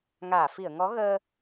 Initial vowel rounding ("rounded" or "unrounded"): unrounded